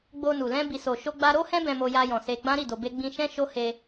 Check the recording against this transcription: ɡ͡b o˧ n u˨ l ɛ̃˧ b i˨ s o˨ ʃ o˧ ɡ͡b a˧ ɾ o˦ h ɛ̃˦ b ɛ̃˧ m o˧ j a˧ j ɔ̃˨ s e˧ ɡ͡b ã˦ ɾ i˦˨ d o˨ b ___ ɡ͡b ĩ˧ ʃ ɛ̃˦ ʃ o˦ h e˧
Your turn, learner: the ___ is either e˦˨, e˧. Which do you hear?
e˧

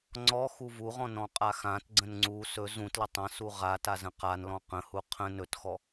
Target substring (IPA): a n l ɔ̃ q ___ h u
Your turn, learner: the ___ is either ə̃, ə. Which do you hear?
ə̃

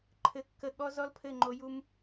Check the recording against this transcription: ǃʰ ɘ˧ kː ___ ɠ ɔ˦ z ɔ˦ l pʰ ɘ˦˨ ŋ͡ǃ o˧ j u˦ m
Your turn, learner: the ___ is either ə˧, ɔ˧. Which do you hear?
ə˧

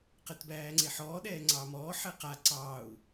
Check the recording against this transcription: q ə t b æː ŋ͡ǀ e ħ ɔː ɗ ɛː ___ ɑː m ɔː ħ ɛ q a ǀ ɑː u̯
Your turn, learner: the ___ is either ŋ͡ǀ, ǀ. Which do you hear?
ŋ͡ǀ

